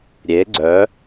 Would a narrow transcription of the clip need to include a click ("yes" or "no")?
yes